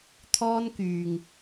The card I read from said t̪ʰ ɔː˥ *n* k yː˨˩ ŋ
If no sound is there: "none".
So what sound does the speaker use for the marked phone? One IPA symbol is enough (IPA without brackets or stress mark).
n